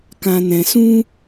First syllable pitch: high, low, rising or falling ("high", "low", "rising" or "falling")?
low